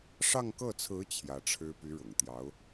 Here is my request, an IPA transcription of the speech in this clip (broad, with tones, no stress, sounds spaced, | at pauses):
ʂ ɑ˥˧ ŋ k ɤ˥˩ t͡sʰ ɹ̩˧˥ t͡ɕʰ j ä˧˥ ʈ͡ʂʰ ɻ̩˥ p y˧˥ ɻ ʊ̰˨˩ ŋ t̪ j ɑ˧˥ ʊ̯